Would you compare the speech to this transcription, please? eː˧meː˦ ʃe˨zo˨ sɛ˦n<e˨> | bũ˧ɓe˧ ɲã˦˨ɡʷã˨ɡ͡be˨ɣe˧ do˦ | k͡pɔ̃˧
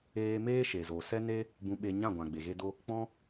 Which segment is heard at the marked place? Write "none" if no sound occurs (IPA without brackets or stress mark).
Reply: e˦